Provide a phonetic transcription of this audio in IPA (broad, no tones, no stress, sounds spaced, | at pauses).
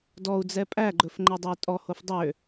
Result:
d ɔ u̯ d͡z ɛ pʼ æ ɡ͡ǃ ɵ f ŋ͡ǃ e dˤ ɵ y̯ tʼ ɔ h o f dˤ ø